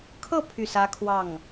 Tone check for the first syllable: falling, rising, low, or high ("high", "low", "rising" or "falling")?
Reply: falling